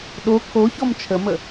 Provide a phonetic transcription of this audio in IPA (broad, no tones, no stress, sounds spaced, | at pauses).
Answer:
ɗ o kʰ o ç ɔ m t͡ʃʰ ə m ə